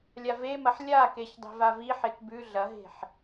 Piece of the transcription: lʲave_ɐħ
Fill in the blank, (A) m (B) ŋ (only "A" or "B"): A